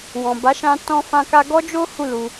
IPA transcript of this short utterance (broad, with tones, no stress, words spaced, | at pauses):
wɔ̃˨ ba˨˦ʃã˧ tɔ̃˧fã˧ka˧ ɡɔ˦d͡ʒo˦ hu˦˨lu˧